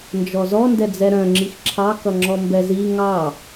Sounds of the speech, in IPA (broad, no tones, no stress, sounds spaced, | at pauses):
n d͡ʒ ɔ z ɔ n d ɛ d͡z ɛ ɾ œ̃ ŋ͡ǁ i x ǁʰ ɑ k ʌ ŋ͡ǁ ɔ m b ɛ z i ŋ ɑ